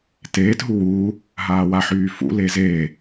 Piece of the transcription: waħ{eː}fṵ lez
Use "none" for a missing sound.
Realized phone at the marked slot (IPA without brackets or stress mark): yː